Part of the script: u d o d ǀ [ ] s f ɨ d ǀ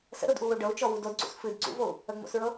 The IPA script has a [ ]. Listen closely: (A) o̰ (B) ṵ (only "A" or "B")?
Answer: B